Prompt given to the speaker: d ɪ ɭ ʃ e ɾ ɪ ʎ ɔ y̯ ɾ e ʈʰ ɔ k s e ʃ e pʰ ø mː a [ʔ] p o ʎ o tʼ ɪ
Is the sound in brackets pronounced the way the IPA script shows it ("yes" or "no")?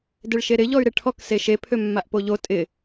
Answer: yes